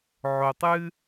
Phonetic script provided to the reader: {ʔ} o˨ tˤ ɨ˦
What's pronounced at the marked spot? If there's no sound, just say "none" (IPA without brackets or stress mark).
ʕ